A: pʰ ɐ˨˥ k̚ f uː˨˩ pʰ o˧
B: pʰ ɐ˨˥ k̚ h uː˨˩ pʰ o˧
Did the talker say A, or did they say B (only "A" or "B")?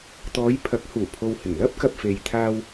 B